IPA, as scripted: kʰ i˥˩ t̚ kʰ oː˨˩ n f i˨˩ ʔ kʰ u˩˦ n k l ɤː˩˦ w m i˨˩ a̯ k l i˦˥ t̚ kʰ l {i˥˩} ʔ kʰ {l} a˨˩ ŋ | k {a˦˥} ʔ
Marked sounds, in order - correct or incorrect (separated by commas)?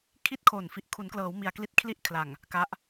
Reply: correct, correct, correct